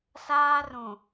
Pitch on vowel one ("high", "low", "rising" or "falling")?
high